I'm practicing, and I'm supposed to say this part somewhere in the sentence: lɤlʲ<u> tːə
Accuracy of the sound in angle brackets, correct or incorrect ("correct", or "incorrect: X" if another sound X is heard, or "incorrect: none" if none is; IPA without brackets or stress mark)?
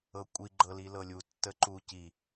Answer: correct